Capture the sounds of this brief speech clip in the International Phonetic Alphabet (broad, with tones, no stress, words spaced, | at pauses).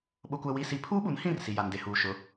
ɓʊ˦kʷɛ˦wi˦si˦ pʰuː˦ɓu˨˦nhĩ˦˨r si˨ja˨nde˨ huː˨ʃʊ˨˦